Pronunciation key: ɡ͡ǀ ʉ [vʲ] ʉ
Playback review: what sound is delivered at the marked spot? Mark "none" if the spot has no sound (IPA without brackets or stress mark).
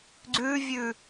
vʲ